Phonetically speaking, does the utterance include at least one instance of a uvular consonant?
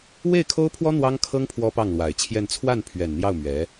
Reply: no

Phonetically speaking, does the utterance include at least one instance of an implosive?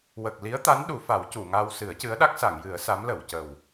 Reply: yes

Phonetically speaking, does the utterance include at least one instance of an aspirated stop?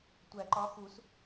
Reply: no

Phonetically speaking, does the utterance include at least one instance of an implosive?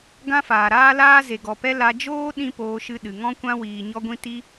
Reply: yes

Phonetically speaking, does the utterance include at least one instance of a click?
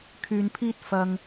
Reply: no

